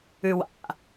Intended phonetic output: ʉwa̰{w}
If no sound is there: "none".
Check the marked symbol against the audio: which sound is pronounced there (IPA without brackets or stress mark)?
none